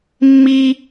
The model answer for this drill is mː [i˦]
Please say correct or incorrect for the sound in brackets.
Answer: correct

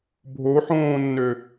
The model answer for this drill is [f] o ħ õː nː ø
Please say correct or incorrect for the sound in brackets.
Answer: incorrect: bʱ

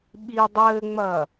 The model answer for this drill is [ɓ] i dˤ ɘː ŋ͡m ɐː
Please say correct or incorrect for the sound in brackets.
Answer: correct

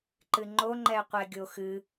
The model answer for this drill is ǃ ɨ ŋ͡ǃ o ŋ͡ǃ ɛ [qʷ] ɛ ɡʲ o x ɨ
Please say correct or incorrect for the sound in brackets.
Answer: correct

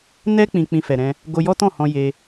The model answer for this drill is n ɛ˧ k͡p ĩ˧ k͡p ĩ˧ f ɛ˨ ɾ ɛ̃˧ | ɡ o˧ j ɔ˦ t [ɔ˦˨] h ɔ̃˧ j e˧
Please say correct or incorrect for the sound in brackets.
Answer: incorrect: ɔ̃˦˨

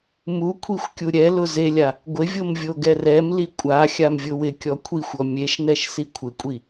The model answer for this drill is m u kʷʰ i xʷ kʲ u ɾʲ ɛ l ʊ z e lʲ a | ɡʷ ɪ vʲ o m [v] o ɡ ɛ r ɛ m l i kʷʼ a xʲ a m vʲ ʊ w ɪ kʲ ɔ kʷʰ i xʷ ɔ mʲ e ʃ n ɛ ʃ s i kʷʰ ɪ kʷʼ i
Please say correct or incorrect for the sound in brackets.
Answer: incorrect: vʲ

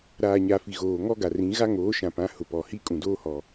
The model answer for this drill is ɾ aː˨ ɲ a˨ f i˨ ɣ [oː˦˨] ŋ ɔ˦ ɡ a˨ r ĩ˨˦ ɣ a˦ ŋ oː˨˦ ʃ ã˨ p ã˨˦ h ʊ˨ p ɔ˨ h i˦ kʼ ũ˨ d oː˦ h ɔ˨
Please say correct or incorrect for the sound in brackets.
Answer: incorrect: oː˨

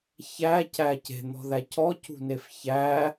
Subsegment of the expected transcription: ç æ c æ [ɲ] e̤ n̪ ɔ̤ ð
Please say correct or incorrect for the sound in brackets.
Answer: incorrect: c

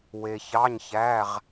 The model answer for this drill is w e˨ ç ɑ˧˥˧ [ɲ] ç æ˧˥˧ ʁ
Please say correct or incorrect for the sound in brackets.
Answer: correct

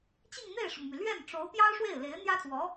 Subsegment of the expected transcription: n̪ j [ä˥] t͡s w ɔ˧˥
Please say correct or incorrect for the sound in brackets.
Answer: correct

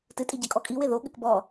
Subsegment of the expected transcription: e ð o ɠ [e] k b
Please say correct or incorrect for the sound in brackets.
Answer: incorrect: ɘ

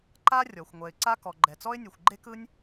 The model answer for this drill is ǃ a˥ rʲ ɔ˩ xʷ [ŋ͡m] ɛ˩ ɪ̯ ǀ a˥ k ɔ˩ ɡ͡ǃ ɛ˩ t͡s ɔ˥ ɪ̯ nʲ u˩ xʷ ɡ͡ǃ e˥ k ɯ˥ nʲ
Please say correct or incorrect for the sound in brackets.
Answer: incorrect: ŋʷ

